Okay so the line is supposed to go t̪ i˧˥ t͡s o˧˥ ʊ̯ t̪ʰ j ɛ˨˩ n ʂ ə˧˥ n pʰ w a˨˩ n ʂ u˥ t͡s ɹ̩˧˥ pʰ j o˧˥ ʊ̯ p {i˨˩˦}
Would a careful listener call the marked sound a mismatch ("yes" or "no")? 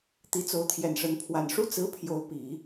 no